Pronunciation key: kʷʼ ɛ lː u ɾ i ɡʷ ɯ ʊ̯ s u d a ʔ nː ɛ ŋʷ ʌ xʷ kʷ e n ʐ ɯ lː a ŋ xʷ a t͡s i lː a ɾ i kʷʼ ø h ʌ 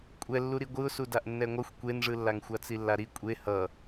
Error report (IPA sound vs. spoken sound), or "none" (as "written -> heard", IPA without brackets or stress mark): ø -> e